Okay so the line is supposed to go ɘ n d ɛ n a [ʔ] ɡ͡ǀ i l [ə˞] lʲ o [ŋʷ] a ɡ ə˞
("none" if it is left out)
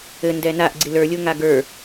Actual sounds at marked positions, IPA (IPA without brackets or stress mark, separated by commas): ʔ, ə˞, ŋ